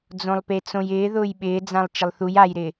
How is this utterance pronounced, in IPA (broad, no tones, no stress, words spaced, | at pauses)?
d͡zõlˠpet͡sõjɪː ðʊːjɓɪːd͡zãlˠ t͡ʃɪlˠθuj ajɾɪ